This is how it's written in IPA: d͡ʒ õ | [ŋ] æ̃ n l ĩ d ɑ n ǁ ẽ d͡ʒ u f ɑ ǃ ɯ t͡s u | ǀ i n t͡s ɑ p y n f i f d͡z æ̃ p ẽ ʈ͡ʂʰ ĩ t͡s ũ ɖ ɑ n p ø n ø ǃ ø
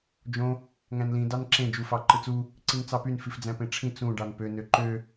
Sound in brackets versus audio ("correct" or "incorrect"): correct